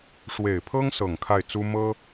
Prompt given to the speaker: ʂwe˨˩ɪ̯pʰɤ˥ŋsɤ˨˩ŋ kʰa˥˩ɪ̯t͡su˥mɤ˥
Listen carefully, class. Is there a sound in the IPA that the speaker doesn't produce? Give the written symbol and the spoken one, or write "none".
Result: none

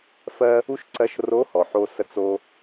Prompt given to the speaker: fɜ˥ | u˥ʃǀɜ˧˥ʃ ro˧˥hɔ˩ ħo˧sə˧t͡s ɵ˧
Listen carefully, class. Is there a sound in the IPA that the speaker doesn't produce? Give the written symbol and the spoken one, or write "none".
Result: ɵ˧ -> o˧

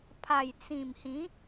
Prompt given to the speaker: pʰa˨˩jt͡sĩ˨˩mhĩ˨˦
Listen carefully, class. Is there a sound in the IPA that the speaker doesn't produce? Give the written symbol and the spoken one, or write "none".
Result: none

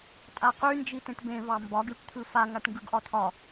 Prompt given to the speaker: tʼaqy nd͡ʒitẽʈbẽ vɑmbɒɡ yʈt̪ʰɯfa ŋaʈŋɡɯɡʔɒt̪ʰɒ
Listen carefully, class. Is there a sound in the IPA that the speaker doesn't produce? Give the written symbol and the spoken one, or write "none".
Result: none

